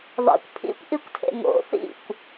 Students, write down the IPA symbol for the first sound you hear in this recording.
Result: ðˤ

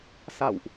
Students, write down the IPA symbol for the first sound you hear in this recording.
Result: s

